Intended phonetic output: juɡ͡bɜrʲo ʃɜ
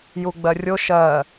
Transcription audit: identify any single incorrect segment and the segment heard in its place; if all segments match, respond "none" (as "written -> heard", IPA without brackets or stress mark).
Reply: none